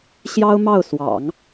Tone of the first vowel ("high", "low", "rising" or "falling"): high